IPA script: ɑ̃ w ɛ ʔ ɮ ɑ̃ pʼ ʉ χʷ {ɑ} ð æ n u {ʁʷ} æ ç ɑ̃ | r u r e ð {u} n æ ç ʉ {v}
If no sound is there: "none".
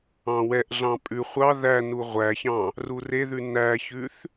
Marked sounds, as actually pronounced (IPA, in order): ɑ, ʁʷ, ʉ, θ

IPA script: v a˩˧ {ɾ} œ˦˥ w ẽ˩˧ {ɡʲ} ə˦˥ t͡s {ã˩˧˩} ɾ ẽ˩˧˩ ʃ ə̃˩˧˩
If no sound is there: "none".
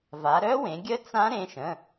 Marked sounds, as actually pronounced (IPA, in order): ɾ, ɡʲ, ã˦˥

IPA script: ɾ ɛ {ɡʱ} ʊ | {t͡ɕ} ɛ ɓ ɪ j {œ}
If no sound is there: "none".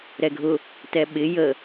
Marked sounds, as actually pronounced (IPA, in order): ɡʱ, t, ə

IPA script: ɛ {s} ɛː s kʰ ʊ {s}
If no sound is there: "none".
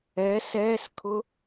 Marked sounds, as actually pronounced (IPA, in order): s, none

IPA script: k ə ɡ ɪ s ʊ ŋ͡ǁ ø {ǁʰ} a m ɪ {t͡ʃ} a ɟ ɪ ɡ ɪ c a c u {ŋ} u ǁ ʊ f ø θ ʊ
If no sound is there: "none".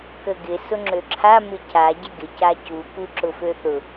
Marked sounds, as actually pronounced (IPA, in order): ǁʰ, c, k

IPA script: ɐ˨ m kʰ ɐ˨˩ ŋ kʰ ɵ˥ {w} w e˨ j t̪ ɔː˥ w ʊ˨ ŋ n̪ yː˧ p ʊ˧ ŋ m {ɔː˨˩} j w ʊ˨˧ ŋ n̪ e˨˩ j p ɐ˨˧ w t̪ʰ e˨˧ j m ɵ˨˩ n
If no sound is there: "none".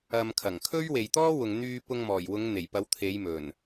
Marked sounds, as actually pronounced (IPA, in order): ɥ, ɔː˨˩

